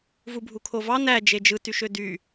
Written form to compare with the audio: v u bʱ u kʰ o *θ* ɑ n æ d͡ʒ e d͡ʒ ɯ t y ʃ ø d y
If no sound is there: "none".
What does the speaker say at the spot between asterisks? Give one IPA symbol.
v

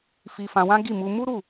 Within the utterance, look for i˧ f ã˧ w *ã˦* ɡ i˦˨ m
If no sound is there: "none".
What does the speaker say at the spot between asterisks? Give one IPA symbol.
ã˦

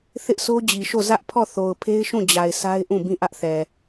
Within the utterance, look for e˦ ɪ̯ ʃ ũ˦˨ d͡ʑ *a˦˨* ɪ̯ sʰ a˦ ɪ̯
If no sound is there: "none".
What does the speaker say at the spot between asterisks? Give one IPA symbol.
a˨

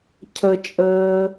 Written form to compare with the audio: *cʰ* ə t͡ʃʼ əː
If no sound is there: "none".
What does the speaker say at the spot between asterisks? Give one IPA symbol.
cʰ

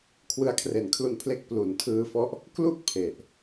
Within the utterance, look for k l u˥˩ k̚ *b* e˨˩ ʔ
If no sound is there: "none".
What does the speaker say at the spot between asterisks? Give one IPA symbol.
pʰ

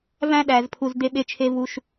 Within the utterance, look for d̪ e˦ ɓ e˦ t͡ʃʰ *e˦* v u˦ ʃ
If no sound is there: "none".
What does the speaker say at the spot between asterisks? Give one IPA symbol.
e˦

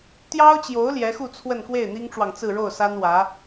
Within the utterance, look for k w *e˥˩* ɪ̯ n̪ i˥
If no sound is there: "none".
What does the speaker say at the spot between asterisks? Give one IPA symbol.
e˥˩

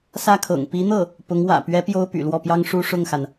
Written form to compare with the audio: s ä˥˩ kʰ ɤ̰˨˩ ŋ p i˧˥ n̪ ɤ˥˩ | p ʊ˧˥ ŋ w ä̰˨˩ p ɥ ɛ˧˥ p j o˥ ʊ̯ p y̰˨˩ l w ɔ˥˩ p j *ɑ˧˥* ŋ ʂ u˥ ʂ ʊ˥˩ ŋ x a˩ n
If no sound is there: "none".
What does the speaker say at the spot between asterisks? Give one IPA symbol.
ɑ˥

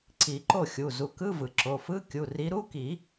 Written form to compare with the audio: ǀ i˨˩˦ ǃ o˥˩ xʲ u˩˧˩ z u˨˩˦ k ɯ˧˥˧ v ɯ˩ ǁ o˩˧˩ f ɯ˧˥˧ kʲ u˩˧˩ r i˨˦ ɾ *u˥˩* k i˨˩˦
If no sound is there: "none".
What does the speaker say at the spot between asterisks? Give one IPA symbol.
u˧˥˧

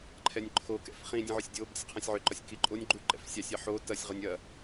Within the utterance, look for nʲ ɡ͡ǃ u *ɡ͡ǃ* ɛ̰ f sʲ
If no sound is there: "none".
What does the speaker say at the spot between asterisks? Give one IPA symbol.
ǃ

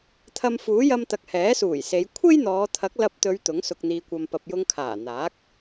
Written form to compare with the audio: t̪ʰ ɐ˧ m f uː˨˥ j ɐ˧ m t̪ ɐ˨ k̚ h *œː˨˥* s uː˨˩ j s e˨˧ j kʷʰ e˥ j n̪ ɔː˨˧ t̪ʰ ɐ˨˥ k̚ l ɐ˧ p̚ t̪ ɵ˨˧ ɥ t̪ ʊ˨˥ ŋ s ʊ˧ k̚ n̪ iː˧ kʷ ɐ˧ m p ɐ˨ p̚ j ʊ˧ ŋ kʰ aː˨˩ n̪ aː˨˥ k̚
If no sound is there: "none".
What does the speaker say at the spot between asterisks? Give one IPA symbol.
ɛː˨˥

